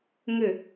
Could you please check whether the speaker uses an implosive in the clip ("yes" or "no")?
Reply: no